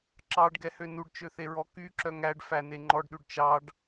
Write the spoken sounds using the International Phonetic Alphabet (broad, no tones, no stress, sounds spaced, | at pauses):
ǁ ɑ ɖ ɡ ɛ h ø n u ɖ t͡ʃ ø θ e ɹ ɔ k y ǁ œ ŋ æ ɖ f æ n e ŋ͡ǃ ɔ ɖ ɗ ʉ ɖ t͡ʃ ɑ ɖ